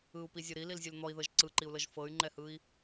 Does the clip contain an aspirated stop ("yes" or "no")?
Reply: no